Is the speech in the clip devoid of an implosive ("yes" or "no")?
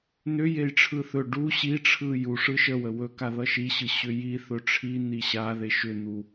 yes